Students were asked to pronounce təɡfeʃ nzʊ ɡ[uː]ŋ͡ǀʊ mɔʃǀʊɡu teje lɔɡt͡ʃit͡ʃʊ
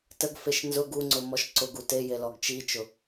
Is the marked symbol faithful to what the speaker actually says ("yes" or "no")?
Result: no